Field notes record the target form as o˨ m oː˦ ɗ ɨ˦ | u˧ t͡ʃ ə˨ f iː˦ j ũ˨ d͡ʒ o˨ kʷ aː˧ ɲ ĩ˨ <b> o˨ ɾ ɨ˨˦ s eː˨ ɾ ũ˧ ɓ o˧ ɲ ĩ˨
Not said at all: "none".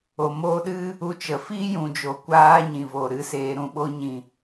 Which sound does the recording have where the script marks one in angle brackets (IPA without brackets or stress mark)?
v